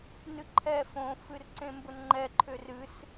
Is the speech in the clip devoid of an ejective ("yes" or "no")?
yes